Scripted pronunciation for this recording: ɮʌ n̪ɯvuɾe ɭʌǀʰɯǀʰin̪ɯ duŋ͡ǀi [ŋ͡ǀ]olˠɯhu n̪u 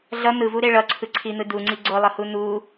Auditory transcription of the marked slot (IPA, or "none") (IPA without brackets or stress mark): ɡ͡ǀ